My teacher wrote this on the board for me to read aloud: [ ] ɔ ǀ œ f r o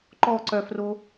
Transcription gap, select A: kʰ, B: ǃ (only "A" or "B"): B